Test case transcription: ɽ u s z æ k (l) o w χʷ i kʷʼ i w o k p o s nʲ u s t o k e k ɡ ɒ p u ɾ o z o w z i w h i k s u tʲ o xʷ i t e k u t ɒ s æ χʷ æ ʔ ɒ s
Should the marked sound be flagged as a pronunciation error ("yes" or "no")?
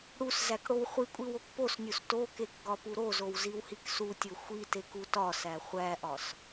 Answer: yes